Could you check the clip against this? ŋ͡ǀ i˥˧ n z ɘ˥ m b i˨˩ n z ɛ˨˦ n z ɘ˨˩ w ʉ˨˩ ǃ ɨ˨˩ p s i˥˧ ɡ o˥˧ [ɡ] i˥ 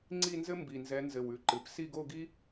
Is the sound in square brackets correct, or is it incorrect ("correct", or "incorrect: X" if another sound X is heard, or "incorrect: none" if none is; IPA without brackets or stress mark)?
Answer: correct